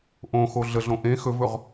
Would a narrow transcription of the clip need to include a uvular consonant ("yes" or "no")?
yes